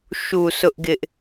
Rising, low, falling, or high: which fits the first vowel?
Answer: low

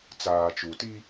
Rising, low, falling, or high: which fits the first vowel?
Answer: low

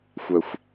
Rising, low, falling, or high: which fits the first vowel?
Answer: low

